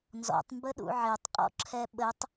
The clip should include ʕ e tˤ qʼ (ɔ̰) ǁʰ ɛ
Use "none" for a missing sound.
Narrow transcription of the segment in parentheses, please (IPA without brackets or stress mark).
ɔ̰